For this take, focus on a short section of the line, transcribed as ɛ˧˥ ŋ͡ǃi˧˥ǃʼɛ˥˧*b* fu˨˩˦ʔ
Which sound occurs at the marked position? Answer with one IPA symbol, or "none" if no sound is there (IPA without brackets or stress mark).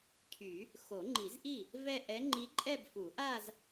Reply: b